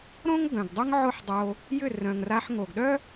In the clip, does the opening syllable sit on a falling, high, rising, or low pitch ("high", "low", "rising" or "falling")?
high